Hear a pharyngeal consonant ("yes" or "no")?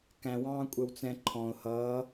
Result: no